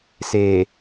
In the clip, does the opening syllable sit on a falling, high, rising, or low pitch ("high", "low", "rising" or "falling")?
low